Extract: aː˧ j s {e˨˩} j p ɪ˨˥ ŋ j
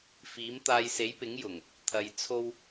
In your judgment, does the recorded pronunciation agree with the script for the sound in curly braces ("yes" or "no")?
no